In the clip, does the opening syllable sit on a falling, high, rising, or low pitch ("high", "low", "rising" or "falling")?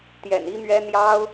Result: low